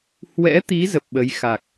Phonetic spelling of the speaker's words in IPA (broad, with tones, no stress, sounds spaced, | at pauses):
h w ɛ̰˧˥ t̪ i˨˦ z ə˨˩ p̚ ɓ ə˨˦ j x a˨˩ k̚